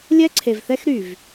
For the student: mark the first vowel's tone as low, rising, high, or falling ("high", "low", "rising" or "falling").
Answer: high